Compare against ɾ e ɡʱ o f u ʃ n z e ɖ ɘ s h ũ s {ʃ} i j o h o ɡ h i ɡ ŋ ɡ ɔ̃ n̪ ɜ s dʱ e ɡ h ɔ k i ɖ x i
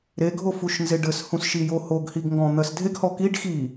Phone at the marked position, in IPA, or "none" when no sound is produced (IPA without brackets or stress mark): ʃ